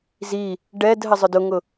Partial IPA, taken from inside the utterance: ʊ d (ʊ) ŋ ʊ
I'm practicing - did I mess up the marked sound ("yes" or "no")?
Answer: no